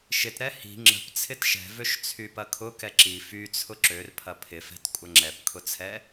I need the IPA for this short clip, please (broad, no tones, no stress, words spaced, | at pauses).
ʃɪtɾɛ hi̤ ŋ͡ǁə̤p t͡sʰɪtʃɛ̤vøʃ t͡sʰypɐkʰʊ kɛǁi fyt͡sʰʊ ǁør pʰɐpʰɪfɛ̤t kʷʼɐŋ͡ǁɛpkʰʊt͡sʰɛ